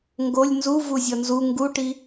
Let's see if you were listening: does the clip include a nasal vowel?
no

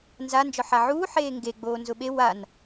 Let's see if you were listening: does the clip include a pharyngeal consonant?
yes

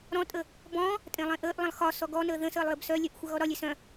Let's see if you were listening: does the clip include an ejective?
yes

